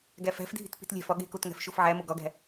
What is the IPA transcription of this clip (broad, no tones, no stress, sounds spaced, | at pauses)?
ɡ æ f æ̤ f dʱ i̤ t p i̤ t lʲ æ̤ f ɒ ɠ e̤ k o t ŋ æ̤ f ʃ o f ʕ æ m o ɡ ɒ ɡ æ̤